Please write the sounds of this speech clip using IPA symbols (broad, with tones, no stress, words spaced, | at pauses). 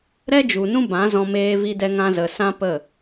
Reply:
ɾɛ˦d͡ʒu˨nũ˦ bã˨˦zɔ̃˧ meː˧vi˧dɛ˧ŋã˧ zə˨sã˦pə˦˨